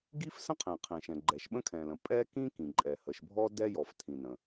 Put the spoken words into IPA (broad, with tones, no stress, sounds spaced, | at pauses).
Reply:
ɡ i˥ f s ə̃˥ qʰ ẽ˩ qʰ ẽ˩ ʃ ɛ̃˩ ɡ͡ǃ ɛ˩ ʃ ɓ ə̃˥ kʰ ɛ̃˩ l ə̃˩ pʼ ɛ˥ k ĩ˥ k ĩ˩ ǃʼ ɛ˩ h ə˩ ʃ bʱ ɔ˥ d ɛ˥ j ɔ˩ f tʰ ĩ˩ n ə̃˩